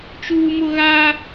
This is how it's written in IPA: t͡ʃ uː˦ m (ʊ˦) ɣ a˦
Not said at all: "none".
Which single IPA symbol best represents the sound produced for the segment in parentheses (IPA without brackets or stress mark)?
ʊ˦